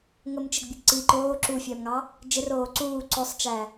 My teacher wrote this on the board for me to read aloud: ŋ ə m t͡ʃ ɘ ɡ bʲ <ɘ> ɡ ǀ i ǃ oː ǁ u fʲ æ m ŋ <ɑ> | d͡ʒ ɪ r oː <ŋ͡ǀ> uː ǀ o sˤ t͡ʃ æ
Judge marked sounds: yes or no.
yes, yes, no

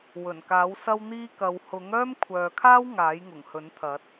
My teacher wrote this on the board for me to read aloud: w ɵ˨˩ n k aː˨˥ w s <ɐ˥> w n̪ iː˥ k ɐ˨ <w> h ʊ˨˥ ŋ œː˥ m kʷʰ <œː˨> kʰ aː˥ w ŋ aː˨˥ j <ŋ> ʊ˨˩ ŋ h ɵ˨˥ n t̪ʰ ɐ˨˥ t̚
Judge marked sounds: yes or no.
yes, yes, yes, yes

